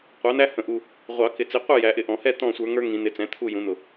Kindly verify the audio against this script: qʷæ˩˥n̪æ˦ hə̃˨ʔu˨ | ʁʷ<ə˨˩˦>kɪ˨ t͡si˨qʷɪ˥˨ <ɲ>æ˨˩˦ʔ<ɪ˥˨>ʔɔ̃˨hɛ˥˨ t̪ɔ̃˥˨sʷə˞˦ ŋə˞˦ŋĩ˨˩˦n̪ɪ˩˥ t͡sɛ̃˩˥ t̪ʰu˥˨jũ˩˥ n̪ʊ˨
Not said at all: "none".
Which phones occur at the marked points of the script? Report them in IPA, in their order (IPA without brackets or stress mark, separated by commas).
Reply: ɑ˨˩˦, j, ɪ˨